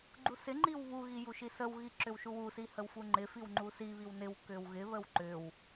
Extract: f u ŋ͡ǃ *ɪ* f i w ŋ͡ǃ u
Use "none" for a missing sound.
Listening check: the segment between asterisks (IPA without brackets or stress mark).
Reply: ɪ